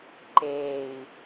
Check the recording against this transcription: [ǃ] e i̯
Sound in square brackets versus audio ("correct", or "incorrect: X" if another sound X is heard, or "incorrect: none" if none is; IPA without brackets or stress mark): correct